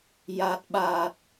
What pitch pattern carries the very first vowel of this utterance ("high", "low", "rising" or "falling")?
low